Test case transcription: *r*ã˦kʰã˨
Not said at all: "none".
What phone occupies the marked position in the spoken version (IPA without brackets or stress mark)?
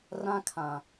r